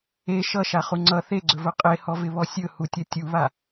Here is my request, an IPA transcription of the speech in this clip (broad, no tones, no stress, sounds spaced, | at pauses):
e ʃ ʌ ʃ a χ u ŋ͡ǀ ʌ θ e ɡ͡ǀ ɵ v ɵ qʼ e h ɔ v ɪ β ɔ sʲ ɵ h u tʲ ʌ tʲ u β a